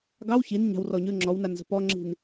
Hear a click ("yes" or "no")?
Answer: yes